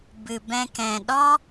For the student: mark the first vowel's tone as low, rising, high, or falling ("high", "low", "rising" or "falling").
low